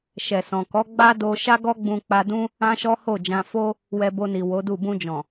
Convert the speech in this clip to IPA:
ʃ ɛ˨ s ɔ̃˨ k ɔ˨˦ ɡ͡b a˦ d o˧ ʃ a˦ ɡ ɔ˦ ɡ͡b ũ˧ k͡p a˧ d ũ˦ | ã˦ ʃ ɔ˦ h o˦˨ d͡ʒ ã˧ f o˦ | w ɛ˧ b o˧ n i˨ w o˨˦ d u˦˨ b ũ˧ d͡ʒ ɔ̃˨

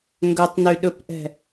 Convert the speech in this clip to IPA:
ŋ ɡ ɵ tˤ n y ɗ ɵ p ʔ ɛ̤

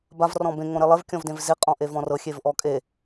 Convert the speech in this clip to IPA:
b a v r ɔ̃ b ẽ ŋ õ ɾ e lˠ e v kʲ ɔ̃ v d ẽ v z e qʼ ɔ̃ ʔ e v ɔ̃ r ɤ xʲ e v ʔ ɔ kʼ e

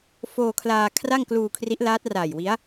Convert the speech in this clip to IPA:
f oː˧ kʰ l aː˧ kʰ r a˥˩ ŋ k l uː˧ kʰ r i˦˥ ʔ l aː˦˥ t̚ r aː˨˩ j w i˦˥ a̯

